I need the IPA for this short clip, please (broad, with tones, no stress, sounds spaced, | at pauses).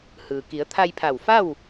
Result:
h ɯː˩ k i˩˧ ə̯ t̪ʰ a˧ j pʰ a˧˩ w f a˥˨ w